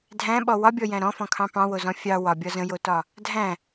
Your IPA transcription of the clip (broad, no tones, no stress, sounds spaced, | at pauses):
dʱ æ̃ ɓ ɔ w ɒ bʲ ɔ j æ̃ ɾ ɔ̃ f ɔ̃ kʰ ɑ̃ p ɑ̃ w o z ɔ̃ fʲ ɑ w ɒ bʲ ɒ z ə̃ j o t ɒ | dʱ æ̃